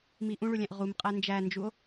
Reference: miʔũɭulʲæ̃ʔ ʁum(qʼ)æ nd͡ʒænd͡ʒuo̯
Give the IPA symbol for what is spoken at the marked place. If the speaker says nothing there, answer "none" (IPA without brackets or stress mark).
qʼ